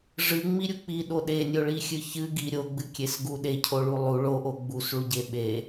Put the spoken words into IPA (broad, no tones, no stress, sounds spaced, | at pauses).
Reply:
ʐ ɨ ŋ͡m i ɾʲ u k͡p i ɗ o ɗ e nʲ o ɭ i xʲ ɨ ç ɨ ɡ i ɾʲ o ɡ͡b ɨ kʲ e s ɡ u ɗ e cʰ o ɭ u lˠ u ɭ o ʔ o ɡ͡b u s ɭ u ɟ e ɓ e